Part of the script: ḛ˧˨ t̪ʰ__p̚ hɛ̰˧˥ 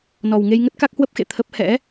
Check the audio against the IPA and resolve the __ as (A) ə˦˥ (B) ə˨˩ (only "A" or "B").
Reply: A